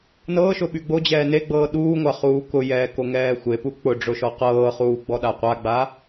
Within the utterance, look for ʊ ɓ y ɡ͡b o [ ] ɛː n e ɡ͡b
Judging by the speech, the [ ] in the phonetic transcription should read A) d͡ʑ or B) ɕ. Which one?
A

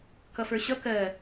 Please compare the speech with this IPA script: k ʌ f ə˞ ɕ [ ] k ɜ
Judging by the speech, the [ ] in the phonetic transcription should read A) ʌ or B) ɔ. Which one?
A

